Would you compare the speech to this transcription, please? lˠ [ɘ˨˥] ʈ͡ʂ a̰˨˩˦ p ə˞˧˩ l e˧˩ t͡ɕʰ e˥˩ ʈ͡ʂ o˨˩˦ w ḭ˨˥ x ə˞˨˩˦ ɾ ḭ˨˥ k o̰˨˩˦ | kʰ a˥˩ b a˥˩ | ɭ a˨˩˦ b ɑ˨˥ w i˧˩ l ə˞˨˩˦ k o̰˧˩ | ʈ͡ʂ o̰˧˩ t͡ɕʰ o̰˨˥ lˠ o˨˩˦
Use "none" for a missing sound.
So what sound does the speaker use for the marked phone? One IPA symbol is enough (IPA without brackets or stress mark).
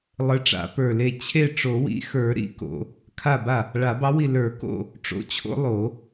ɘ˨˥